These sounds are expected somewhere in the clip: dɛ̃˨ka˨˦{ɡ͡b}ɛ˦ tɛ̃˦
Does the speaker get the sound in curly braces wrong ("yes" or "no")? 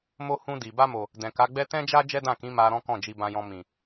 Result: no